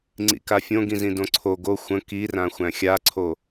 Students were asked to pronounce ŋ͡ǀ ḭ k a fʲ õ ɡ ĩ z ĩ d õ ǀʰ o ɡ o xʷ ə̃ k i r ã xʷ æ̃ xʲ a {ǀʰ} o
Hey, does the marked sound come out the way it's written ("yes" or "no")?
yes